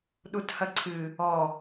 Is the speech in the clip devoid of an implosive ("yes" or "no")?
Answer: no